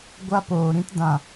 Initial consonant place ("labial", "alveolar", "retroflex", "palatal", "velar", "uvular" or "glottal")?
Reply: velar